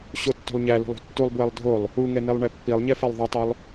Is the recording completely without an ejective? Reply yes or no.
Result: yes